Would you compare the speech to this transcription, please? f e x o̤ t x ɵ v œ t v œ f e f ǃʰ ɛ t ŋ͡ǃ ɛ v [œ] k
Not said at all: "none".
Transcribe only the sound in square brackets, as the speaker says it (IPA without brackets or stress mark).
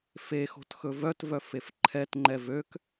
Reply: ø